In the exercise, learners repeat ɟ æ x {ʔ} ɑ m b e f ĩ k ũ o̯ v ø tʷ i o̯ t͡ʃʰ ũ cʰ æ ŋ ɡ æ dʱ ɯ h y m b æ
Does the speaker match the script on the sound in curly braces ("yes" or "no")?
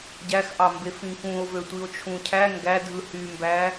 yes